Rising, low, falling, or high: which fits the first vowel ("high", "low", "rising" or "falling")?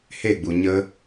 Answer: falling